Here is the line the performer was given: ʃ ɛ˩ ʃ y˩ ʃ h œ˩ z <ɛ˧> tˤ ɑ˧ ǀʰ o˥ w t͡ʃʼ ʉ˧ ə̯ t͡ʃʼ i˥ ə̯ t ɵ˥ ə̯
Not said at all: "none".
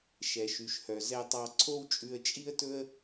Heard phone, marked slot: ɛ˧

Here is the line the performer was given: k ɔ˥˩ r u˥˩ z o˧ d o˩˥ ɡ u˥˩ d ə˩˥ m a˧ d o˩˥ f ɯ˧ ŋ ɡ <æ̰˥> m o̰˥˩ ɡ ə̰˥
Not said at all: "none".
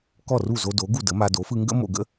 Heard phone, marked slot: ə̰˥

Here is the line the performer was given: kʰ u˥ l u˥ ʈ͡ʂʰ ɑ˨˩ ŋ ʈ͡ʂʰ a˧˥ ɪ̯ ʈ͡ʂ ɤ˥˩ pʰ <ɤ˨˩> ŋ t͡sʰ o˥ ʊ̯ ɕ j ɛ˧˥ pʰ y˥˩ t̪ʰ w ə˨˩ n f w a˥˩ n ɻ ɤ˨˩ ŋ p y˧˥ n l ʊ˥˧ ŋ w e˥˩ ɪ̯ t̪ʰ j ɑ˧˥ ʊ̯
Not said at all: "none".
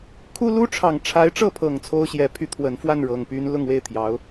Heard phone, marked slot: ɤ˨˩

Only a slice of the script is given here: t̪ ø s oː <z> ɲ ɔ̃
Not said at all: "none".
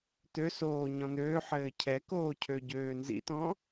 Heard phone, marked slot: none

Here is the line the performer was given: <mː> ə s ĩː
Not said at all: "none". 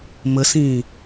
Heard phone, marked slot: m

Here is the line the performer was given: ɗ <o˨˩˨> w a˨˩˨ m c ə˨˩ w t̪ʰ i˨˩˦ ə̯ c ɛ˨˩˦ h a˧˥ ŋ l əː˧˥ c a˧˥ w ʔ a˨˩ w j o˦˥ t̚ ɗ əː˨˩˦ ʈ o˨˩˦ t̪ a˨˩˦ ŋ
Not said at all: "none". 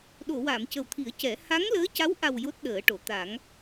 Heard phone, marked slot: o˨˩˨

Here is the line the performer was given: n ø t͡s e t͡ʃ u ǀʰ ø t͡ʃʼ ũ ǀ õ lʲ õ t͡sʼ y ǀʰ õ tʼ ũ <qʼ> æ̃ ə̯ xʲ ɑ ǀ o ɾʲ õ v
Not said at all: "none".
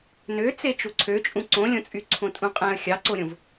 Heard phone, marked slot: qʼ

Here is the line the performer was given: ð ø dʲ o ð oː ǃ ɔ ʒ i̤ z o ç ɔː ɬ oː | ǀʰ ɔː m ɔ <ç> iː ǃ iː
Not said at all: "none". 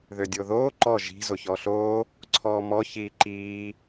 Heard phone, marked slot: ç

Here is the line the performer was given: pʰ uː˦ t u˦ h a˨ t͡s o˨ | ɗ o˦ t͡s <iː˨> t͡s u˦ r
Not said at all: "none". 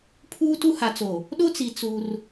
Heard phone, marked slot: i˨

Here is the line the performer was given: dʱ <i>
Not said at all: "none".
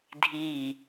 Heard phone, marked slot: i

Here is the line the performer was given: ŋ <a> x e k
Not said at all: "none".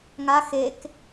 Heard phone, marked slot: a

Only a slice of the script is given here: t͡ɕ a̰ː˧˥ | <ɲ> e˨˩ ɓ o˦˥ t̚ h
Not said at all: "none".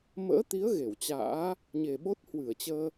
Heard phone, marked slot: ɲ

